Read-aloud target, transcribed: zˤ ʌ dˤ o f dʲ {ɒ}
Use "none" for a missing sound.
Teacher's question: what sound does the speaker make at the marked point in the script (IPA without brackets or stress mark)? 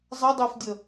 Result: ʌ